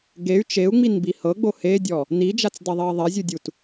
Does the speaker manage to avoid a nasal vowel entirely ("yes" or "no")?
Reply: yes